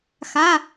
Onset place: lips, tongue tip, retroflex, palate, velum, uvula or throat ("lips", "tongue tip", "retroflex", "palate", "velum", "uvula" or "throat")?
velum